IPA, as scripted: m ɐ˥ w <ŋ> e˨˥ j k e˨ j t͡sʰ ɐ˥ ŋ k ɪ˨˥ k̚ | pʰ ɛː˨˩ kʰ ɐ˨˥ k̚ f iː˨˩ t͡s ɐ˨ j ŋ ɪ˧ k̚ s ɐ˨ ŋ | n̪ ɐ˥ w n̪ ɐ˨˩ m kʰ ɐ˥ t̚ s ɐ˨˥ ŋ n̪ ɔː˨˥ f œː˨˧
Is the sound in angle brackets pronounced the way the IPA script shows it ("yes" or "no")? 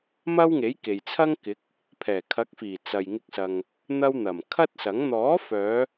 yes